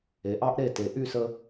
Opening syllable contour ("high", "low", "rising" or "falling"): low